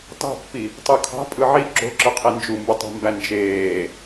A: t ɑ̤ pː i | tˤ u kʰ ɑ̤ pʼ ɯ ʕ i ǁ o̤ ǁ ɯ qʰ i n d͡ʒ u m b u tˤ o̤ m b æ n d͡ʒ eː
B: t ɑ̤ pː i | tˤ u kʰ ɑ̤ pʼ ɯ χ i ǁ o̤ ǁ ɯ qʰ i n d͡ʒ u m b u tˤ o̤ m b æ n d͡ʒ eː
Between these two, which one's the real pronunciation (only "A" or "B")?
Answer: A